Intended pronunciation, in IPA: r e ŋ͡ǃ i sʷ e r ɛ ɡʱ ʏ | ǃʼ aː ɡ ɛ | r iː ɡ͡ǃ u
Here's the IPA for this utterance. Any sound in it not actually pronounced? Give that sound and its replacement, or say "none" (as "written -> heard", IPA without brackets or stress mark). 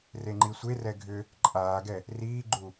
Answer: none